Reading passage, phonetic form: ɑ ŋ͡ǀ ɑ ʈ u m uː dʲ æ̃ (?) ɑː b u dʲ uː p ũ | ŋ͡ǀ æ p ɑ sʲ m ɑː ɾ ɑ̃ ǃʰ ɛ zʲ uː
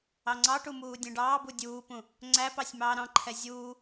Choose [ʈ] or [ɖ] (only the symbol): ɖ